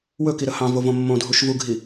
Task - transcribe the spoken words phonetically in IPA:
w ɵ k i ɾ ə h ɑ̃ v o v õ mː õ dʱ u ʃ v u ɡʱ i

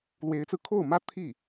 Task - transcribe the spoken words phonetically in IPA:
l w e˧˥ ɪ̯ t͡s ɹ̩˧ kʰ o˥˩ ʊ̯ m ä˥ t̪ʰ i˥˩

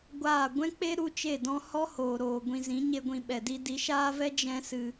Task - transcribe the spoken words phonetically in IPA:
ɡʷ aː˦˨ ɡʷ ɛ̃˦ k͡p e˦ ɾ u˦ t͡ʃ e˦˨ d ɔ̃˦ h ɔ˦ h oː˨ ɾ oː˨ ɡʷ ĩ˧ z ĩ˨˦ ɲ e˦ ɡʷ ĩ˧ ɓ ɛ˨ d i˦ d i˨˦ ʃ aː˦ v ɛ˦ d͡ʒ ɛ̃˦ s ɨ˧

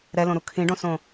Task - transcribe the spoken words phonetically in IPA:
ɾ ɛ l õ ɾ u kʰ ĩ ɖ õ s õ

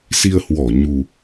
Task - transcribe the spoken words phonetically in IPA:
s i˧ ə̯ h w ɔ˧˩ ɲ u˨˩

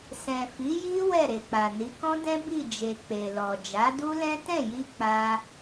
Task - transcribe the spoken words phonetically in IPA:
s ɛ̃˨ f i˨˦ j i˦ w ɛ˦˨ ɾ e˨ k͡p a˨ n i˨˦ k ɔ̃˦ d ɛ̃˦ b i˦˨ d͡ʒ e˨ k͡p e˨ l ɔ˨ d͡ʒ a˨˦ d u˦ l ɛ̃˦ t ɛ̃˦˨ j i˧ k͡p a˧

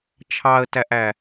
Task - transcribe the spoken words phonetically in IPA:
t͡ʃʰ ɑ ə̯ t æ ʔ æ

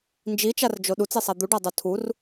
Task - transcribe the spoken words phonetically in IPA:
n d͡ʒ i t͡ʃ a r d͡ʒ o ɗ u t͡s e sˤ a d̪ u ɖ a dˤ o tʰ u r

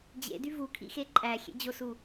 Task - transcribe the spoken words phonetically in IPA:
d͡ʑ ḛ d y v u kʰ ḭ x e ǃʼ æ xʲ ḛ d͡ʑ o s u

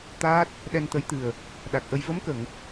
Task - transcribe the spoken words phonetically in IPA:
t̪ aː˦˥ t̚ | ɗ ɛ˧ n t̪ ə˧˥ j t̪ ɨ˨˩ ə̯ | ɗ a˨˩ k̚ ʔ ə˧ j v ə˧˥ m k ə˨˩˨ ŋ

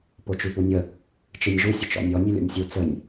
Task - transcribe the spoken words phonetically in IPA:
p o t͡ʃ ʉ p u nʲ ə | t͡ʃ ɨ nʲ ʒ u sʲ ə t͡ʃ ɔ̰ nʲ ɔ nʲ ʉ lʲ ɔ̰ nʲ sʲ u t͡s ə nʲ

